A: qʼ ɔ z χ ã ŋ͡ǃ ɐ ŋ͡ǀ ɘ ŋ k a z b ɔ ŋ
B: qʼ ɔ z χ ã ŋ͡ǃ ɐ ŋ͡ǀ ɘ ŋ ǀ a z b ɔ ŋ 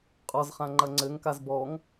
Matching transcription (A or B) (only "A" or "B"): A